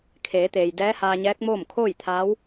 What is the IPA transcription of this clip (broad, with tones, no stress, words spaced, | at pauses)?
kʰeː˩˧t̪eː˩j dɛː˧˥haː˧ɲɛː˧˥k̚moː˥˨m kʰoː˥˨jt̪ʰaː˧˥w